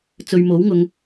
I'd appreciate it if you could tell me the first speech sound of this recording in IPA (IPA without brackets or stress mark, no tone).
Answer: t͡s